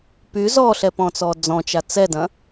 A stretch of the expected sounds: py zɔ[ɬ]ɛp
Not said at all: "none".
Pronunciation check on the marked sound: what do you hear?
ɬ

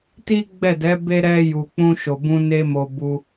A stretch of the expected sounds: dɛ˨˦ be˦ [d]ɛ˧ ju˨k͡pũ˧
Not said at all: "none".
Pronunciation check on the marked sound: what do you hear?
ɾ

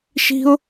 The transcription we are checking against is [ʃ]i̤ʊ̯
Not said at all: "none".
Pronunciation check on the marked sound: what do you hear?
ʃ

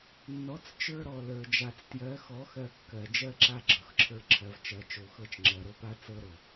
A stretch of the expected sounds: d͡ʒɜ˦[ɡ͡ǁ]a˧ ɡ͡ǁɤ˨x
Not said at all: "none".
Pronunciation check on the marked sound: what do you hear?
ǁ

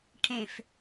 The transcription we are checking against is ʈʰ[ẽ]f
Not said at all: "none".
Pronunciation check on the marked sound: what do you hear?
ẽ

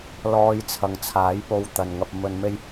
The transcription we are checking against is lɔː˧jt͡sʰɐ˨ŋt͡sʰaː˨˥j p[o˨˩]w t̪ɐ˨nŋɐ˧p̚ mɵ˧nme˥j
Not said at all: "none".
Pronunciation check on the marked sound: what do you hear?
o˨˧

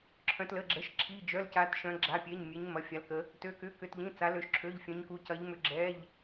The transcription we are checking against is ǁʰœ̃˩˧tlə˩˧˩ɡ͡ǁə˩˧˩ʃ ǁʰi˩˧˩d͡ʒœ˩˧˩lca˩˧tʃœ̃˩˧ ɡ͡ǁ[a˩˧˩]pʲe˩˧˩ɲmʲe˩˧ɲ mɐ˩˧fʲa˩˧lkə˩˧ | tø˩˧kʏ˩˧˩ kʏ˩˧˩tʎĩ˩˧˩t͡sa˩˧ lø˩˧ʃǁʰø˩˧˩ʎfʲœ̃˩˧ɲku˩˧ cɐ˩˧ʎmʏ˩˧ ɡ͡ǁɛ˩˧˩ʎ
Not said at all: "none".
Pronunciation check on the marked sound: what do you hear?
a˩˧˩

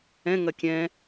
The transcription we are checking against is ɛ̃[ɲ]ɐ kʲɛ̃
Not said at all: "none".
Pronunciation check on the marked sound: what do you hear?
ŋ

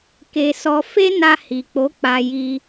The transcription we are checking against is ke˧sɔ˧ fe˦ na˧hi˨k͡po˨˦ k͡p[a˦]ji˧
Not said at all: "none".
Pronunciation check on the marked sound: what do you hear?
a˧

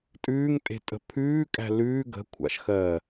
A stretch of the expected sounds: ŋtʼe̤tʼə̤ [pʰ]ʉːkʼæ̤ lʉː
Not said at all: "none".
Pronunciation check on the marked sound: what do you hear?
pʰ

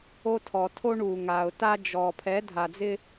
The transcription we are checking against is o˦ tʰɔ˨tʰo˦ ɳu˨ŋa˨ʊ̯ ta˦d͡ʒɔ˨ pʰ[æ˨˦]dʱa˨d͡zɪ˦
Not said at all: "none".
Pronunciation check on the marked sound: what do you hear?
ɛ˨˦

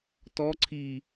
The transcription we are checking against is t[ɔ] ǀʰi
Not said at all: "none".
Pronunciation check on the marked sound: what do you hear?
ɔ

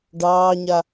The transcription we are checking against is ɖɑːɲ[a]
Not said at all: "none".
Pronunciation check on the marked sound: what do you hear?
a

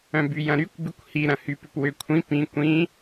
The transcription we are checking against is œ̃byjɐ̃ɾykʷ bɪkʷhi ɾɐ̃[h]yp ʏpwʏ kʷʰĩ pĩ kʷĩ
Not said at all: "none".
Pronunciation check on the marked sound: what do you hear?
h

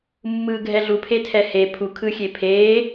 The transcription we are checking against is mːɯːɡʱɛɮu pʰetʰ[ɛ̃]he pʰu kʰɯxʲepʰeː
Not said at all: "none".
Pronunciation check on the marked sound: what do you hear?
ɛ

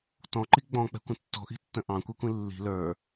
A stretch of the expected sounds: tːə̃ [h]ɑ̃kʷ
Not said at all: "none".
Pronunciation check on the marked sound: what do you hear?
ʔ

